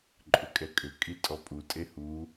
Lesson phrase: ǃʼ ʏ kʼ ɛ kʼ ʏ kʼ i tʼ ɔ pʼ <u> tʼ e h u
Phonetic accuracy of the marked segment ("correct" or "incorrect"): correct